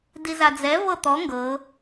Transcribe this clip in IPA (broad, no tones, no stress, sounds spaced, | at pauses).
d i z a d͡z ɛ v ɤ t̪ ɔ ŋ ɡ ɤ